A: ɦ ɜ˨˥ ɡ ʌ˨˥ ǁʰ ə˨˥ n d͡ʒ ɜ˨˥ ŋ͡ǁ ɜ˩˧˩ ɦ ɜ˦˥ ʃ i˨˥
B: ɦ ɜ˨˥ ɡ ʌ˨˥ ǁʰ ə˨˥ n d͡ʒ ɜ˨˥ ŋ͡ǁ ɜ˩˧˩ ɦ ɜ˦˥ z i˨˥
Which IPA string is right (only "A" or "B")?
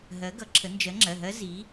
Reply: B